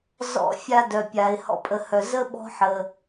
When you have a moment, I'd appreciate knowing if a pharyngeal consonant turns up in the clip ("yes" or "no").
yes